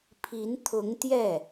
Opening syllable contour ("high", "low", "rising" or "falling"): rising